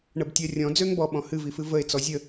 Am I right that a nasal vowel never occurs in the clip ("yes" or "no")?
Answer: no